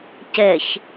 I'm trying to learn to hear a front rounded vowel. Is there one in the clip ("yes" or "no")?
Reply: no